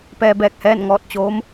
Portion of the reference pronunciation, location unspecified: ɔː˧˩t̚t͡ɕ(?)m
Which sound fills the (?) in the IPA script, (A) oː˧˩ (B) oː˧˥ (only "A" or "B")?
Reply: B